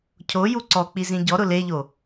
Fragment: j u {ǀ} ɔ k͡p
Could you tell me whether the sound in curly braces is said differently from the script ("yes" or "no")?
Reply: no